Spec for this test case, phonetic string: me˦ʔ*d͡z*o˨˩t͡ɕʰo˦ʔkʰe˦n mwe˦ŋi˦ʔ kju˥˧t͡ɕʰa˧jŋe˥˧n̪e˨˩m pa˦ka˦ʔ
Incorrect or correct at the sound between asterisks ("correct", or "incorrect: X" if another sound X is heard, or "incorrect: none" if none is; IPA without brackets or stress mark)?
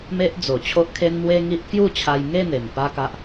correct